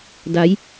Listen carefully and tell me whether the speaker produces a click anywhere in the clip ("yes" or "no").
no